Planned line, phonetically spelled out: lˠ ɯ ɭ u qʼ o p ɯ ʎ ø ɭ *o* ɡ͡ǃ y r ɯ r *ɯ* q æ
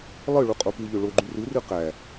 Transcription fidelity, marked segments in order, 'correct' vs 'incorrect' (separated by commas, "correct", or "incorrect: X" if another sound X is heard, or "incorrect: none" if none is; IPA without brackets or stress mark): correct, correct